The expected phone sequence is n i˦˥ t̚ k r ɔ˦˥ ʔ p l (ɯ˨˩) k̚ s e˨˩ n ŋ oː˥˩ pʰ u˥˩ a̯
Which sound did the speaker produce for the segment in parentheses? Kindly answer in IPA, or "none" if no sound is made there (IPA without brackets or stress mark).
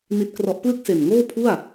ɯ˥˩